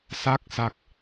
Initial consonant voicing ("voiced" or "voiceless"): voiceless